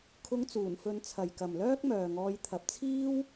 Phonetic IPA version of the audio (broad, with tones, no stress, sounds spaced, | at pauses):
kʰ ʊ˧ ŋ t͡s uː˨˩ n f ɵ˨˧ n t͡sʰ ɐ˨ j k ɐ˨ m l œː˥ k̚ m œː˨ ŋ ɔː˧ j t̪ʰ ɐ˨ p̚ t͡sʰ iː˥ w